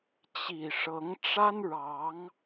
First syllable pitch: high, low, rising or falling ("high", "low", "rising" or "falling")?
low